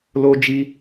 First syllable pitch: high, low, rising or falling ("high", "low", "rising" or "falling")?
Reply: high